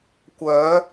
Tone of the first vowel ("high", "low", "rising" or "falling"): rising